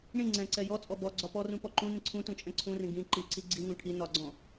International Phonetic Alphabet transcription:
ɳĩ ŋ͡ǀɛ̃ǀɛ jɔt͡sʼɔ bɔ ɡ͡ǀɒpɔrũ pɔǃũnĩ ǀʰũ tũt͡ʃʼɛ̃ǀʰũrĩ ɡĩ ǃi ǀiɡ͡ǀiŋũ ʈʰi nɒɡ͡ǀɔ̃

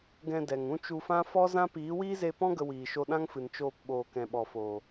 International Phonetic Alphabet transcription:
ɡɛ̃˧ dɛ˨ŋũ˦t͡ʃu˧fã˦ fɔ˦zã˦ piː˨˦wiː˦ze˧pɔ̃˦ ɡə˧wiː˨ʃo˧ ɗã˦ŋfɨ˨n t͡ʃoː˧p ɓoː˨kɛ̃˨ɓɔ˨foː˨

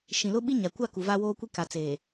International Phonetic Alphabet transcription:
ʃĩ˨lʊ˦ ɓi˦ ɲa˨ kʷa˦˨ ku˨va˦woː˦kʷi˦ ka˨t͡seː˨

